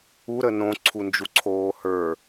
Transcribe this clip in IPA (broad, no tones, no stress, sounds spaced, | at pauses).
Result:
u ɾ ə n õ ǀʰ u n d͡ʒ u ǀʰ oː h ə˞